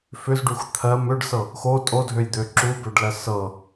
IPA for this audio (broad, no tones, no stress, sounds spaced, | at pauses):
f ʏ z ɖ u x t̪ʰ ɜ m ʏ ɖ s ɤ | x o tʼ o dʱ ø j d̪ ø ǁ u b ø ɖ l ɜ s ɤ